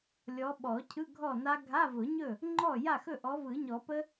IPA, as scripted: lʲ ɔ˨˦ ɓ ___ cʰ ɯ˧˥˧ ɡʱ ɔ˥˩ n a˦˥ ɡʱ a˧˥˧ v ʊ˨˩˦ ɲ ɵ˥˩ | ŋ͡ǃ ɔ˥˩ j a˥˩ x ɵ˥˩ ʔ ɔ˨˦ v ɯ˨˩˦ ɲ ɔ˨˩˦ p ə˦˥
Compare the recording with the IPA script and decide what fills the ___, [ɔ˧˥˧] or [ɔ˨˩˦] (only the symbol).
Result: ɔ˨˩˦